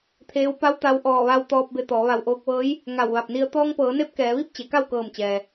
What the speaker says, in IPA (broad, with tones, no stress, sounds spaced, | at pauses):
t̪ʰ eː˧˥ w p a˧˥ w t̪ a˧ w ʔ ɔː˧˩ ʋ a˧ w t̪ ɔː˧ p̚ b e˧ t̪ ɔː˩˧ ʋ a˧˩ w ʔ oː˧ k̚ ʋ ɤː˧˥ j | ŋ a˧˩ w ʋ a˧˩ p̚ n i˧ ə̯ t̪ ɔː˧ ŋ p ɤː˩˧ n e˧˥ p̚ k ɛː˩˧ ʋ i˥˨ p̚ t͡ɕ e˩˧ k a˥˨ w k ɤː˧˩ m t͡ɕ ɛː˩